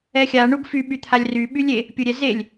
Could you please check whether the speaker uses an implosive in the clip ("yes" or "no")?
yes